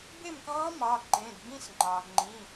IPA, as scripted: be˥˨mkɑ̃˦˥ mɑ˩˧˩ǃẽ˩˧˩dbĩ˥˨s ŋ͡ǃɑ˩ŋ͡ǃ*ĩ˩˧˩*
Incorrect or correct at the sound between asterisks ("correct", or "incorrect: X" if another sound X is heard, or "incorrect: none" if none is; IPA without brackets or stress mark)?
correct